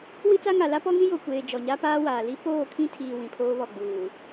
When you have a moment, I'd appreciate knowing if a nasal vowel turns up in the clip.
yes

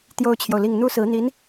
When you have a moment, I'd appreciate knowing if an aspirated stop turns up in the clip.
yes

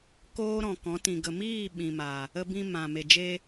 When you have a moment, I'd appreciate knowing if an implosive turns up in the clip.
yes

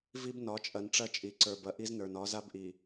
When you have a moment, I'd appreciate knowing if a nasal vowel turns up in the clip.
no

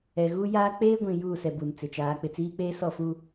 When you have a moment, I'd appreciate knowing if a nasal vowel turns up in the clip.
yes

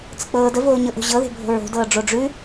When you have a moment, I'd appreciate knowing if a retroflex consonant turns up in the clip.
yes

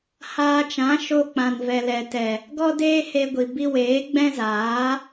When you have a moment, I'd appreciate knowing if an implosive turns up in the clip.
no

